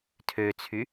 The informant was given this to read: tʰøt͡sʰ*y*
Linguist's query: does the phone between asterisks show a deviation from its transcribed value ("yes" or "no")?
no